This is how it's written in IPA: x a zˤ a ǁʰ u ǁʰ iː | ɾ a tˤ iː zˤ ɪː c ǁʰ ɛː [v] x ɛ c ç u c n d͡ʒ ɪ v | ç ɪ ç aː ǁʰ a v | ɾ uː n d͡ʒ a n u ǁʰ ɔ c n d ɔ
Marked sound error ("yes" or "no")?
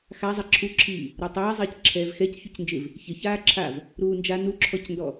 no